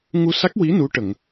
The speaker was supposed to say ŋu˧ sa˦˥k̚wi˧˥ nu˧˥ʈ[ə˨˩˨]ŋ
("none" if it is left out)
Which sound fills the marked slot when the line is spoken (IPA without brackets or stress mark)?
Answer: ə˨˩˨